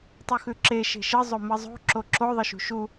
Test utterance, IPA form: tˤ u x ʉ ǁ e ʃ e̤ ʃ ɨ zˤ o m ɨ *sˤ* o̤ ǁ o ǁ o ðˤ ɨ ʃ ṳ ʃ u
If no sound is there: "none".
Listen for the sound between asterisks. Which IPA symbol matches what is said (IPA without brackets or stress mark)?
zˤ